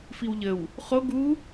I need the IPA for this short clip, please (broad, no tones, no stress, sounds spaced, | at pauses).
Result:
f i w ʎ ə w | χ o ɡ u